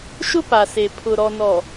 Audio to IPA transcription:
ʃ ʊ˦ p a˨ s e˨ pʰ ʊ˨ ɾ ɔ˨ n ɔ˨

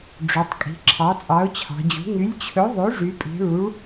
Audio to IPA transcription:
ɖ͡ʐ ɵ˩˧ tˤ kʼ i̤˩˧ ǁʰ ɑ˩˥ t͡sʼ ɑ˩˥ ʊ̯ t͡ɕʰ ɑ̤˩˧ d͡ʑ ṳ˩˥ ŋ y˩˥ lʲ t͡ɕʰ ɵ˩˥ ðˤ ø˩˥ ʐ y˩˧ pʼ i̤˩˧ ɭ u˩˥ ɭ

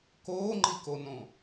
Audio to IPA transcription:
k oː ŋ͡ǃ i k o n õ

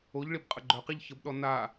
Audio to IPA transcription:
o ʎ ɭ i b qʼ ə ɡ͡ǃ œ q i ʎ ç ə b ɗ ɔ n a

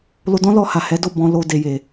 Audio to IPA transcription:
l o˧ d ɔ̃˦ l ɔ˧ h a˨ h ɛ˨˦ d o˦˨ b ɔ̃˧ l o˧ d e˨ j e˨

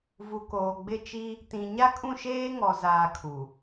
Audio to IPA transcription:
v u˨ k oː˨ ɡ͡b ɪ˦˨ t͡ʃ i˦ | t ĩ˨ ɲ a˦ kʼ ũ˦˨ ʃ eː˦ ŋ ɔ˨ z aː˨ kʰ u˨

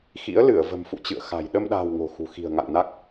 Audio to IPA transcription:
x ḭ˧˥ ə̯ l ɨ˧˩ ə̯ v ə̤˨˩ m f ṵ˧˨ t͡ɕ ɨ̰˧˨ ə̯ x a̤˨˩ j ɗ ə˧ m ɗ a̤ː˨˩ w ŋ o̤˨˩ x ṳ˨˩ x i̤˨˩ ə̯ ŋ a̰˧˨ ŋ n a˦˥ k̚

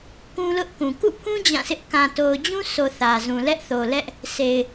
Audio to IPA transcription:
k ũ˦ l ʊ˦ ʔ k ũ˨ k ṵ˦˨ pʰ ũ˦ d͡ʑ ã˦˨ s ɪ˦ ʔ k ã˨ t o˨ ʊ̯ d͡ʑ ũ˦ sʰ o˨ θ ä˨ z ũ˨ l ɛ˦ ʔ θ o˨ l ɛ˦ ʔ | s e˨ ɪ̯

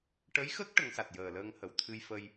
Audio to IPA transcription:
ʈ ə˧˥ j x ə˦˥ k̚ ʈ ə˧˥ ŋ s a˨˩ t̚ j əː˨˩ l əː˧ ŋ h ə˨˩˨ w t̪ʰ ɨ˧ j f ə˧ j

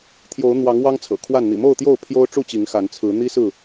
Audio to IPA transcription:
t̪ʰ j o˨˦ ʊ̯ n̪ w ɑ˨˦ ŋ w ɑ˦ ŋ t͡sʰ ɤ̰˨˩ kʰ w a˥˨ n n̪ ḭ˨˩ m o˥˨ ʊ̯ t̪ j o˥˨ ʊ̯ pʰ j o˦ ʊ̯ ʈ͡ʂ u˥˨ t͡ɕ i˨˦ ŋ x a˨˦ n t͡sʰ ɹ̩˨˦ n̪ i˦ s ɹ̩˥˨

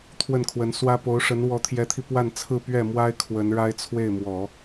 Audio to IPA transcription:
t̪ʰ w ə˥˩ n kʰ w ə˧˥ n s w ä˥ p o˧˥ ʊ̯ ʂ ə˧˥ n w ɔ˧˥ t̪ʰ j ɛ˧˥ t̪ʰ i˧ p w a˥˧ n t͡sʰ ɹ̩˥˧ p ɥ ɛ˥˩ m w a˥ ɪ̯ kʰ w ə˧˥ n ɻ a˥ ɪ̯ t͡sʰ w e˥˩ ɪ̯ m w ɔ˨˩˦

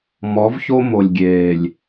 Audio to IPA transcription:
m ɔ˨˦ v ç o˦ m o˨ lʲ ɡʲ eː˨ lʲ

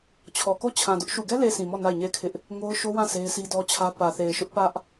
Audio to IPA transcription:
t͡ɕʰ ɔ˨ k o˦˨ t͡ɕʰ ã˨ d ʊ˦ ʔ ʃ u˨ ɡ ɛ˦ l e˨ sʰ ĩ˨ m ɔ˦˨ n a˦˨ ɪ̯ ɲ e˦˨ ɪ̯ kʰ ɪ˦ ʔ | ŋ o˦ ʊ̯ ʃ o˦ w ã˦˨ sʰ e˦ ɪ̯ s i˦ d ɔ˦ t͡ɕʰ ä˦ p ä˨ θ e˨ ɪ̯ ʃ ʊ˦ ʔ p ä˦ ʔ

